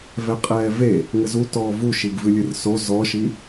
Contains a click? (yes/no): no